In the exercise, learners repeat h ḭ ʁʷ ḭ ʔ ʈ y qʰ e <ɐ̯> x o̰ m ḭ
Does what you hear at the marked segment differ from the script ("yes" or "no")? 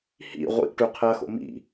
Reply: no